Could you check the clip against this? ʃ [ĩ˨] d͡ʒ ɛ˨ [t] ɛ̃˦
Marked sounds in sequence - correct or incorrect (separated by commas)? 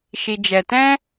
incorrect, correct